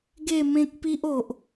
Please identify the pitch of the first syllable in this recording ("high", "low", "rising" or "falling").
falling